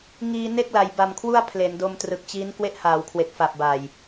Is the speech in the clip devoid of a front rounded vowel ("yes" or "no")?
yes